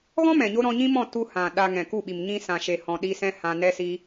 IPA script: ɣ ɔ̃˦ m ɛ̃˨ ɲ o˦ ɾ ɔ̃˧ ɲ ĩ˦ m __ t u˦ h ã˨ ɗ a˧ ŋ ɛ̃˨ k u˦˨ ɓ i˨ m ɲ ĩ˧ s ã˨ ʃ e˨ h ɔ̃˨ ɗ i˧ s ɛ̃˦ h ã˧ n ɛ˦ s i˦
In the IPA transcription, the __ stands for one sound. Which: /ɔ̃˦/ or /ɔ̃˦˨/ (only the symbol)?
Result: ɔ̃˦˨